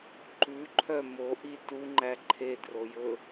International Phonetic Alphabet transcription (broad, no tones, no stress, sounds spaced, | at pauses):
ǃ ʉ ǃʰ œ m o ʔ i t u ŋ͡ǃ æ ǃʰ e d r o j ɵ